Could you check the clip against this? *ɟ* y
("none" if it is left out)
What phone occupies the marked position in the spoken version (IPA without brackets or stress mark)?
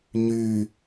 ɲ